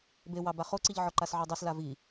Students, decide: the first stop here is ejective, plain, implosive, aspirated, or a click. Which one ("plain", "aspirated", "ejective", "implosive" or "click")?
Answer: plain